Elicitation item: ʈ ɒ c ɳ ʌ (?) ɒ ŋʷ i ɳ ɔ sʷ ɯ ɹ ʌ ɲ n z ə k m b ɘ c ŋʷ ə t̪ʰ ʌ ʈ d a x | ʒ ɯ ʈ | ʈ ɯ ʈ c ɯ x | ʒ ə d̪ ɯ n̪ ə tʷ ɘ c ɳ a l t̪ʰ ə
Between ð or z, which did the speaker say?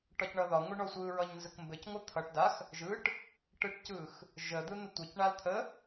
ð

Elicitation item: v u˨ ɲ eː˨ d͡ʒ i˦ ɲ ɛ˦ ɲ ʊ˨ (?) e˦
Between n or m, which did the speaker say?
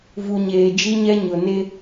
n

